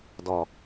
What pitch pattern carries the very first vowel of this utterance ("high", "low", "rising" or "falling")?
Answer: low